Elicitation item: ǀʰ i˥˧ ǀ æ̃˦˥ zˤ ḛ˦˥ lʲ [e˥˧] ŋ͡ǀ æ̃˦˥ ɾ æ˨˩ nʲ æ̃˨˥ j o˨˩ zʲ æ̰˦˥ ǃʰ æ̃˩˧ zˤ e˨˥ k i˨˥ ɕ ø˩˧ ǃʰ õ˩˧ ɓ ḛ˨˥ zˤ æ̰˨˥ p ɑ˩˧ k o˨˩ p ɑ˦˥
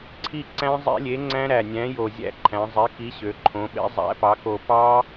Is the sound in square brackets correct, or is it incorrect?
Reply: incorrect